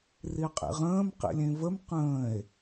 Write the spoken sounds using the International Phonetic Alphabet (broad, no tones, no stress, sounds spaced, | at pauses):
r i qʼ ḭ ʁ ə̃ː m q ḭ lʲ ẽ v ə m q ə̃ː e̯